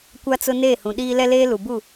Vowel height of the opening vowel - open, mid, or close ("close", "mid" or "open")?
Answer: open